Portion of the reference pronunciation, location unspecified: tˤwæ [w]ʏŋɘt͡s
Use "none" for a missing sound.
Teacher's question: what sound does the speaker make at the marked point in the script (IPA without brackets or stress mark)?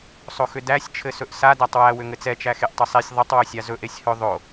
w